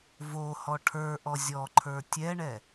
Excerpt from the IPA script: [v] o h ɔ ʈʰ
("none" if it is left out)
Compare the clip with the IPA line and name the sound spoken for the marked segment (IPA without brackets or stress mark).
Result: v